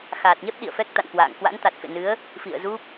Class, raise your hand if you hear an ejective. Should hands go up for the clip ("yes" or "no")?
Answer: no